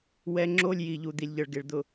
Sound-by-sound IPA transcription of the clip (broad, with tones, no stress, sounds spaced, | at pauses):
w ɛ˦ ŋ͡ǁ o˦ lʲ j i˨ ʎ u˨ d̪ i˨ lʲ ʎ ɤ˨ ɭ ɡ e˨ ɭ d̪ ʊ˨